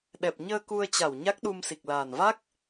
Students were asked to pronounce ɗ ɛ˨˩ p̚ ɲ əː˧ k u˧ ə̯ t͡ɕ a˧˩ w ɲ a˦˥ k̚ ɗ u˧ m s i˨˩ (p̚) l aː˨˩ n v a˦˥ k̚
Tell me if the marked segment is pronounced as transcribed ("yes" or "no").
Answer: no